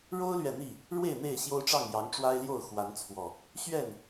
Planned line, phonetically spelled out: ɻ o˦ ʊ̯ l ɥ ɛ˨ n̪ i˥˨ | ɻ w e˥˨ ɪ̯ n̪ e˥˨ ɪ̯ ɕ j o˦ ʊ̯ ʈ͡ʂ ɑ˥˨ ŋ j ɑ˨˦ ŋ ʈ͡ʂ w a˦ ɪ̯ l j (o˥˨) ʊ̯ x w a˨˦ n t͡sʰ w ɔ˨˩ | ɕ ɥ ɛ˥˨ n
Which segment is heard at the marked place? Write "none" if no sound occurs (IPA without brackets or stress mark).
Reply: o˥˨